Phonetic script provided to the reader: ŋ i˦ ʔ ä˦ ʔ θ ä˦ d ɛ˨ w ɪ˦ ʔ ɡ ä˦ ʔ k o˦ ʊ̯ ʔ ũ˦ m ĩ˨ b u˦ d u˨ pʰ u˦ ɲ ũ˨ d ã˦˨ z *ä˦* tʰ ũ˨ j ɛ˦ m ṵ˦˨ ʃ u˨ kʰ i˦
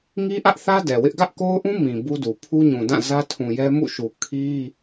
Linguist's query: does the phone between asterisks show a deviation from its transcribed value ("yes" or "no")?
no